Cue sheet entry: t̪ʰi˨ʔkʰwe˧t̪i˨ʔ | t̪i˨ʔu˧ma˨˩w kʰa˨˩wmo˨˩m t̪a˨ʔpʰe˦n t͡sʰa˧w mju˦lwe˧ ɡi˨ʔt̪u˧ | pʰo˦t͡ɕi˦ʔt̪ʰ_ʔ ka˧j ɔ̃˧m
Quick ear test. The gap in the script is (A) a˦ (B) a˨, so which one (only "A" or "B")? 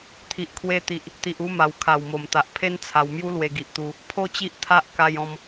A